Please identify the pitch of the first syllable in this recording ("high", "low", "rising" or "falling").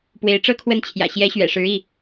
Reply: rising